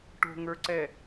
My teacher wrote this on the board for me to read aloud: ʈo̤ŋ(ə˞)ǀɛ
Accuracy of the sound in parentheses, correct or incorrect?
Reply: correct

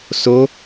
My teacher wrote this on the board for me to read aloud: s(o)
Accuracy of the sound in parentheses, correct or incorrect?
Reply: correct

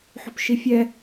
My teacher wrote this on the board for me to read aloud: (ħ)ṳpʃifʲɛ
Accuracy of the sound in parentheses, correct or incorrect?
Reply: correct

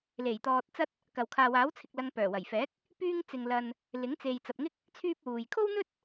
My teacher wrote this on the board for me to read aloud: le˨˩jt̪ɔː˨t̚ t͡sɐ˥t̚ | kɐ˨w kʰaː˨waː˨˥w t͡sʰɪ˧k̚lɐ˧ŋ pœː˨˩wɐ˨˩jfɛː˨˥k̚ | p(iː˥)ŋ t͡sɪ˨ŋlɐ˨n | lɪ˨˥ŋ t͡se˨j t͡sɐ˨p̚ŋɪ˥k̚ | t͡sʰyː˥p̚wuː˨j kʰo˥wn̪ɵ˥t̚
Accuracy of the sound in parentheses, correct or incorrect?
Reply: incorrect: yː˥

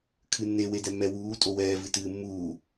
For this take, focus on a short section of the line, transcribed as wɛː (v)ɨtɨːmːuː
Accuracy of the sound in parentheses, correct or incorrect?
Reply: correct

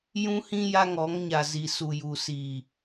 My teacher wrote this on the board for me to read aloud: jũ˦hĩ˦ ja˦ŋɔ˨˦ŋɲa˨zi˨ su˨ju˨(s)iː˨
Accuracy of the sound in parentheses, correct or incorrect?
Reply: correct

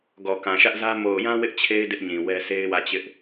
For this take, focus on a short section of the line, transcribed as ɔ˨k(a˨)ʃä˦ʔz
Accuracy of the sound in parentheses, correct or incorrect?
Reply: incorrect: ã˨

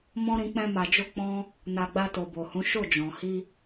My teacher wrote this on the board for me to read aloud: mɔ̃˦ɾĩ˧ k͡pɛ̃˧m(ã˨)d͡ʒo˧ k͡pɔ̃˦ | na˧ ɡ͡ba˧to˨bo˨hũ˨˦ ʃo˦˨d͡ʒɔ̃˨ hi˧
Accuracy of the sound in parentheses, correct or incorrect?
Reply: incorrect: a˨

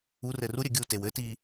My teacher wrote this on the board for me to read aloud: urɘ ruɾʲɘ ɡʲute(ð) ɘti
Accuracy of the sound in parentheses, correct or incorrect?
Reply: incorrect: w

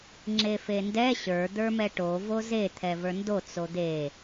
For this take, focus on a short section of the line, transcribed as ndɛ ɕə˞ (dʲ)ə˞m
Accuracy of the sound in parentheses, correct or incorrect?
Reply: incorrect: d̪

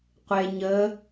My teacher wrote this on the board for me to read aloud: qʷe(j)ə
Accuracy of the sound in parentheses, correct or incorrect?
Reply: incorrect: ɲ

